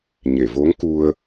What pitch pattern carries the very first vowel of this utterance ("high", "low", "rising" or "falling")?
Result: low